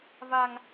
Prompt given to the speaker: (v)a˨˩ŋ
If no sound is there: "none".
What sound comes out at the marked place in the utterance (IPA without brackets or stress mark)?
v